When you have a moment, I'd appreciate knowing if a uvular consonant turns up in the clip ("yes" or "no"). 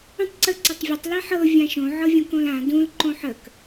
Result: no